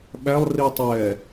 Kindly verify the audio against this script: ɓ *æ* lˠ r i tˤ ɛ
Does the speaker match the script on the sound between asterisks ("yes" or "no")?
yes